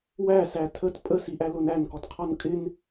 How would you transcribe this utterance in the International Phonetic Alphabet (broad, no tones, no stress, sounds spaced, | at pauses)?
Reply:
w æ s æ tʰ ə t pʼ ə s i ʔ æ l ʊ n æ n k ɔ t qʰ ɔ n kʼ ɪ n